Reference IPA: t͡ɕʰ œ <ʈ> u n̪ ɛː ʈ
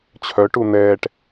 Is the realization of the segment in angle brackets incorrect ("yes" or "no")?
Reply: no